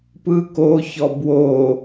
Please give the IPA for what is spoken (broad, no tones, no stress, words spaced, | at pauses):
pɯ koçɔ bwo